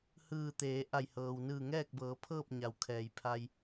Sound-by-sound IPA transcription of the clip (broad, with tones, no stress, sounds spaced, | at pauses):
h ɯː˧˩ t̪ eː˩˧ ʔ a˧˩ j h ɤː˩ w n ɯː˧˩ ŋ ɛː˥˨ k̚ b ɤː˩˧ pʰ ɤː˥˨ p̚ ɲ a˩ w kʰ ɛː˩ j pʰ a˧ j